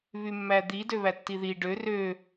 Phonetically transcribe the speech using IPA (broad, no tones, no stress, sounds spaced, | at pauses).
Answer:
β y mː æ d̪ i d ø β æ tː i ð i ɖ ø r ø